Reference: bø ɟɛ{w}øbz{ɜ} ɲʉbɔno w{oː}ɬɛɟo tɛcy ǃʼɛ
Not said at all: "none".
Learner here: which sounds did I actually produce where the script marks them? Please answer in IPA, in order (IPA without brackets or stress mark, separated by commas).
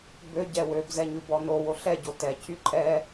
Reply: w, ɛ, o